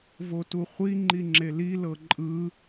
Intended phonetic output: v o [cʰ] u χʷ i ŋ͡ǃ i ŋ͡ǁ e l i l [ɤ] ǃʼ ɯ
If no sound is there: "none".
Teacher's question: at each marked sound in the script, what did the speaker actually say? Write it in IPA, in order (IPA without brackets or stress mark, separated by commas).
t, ɤ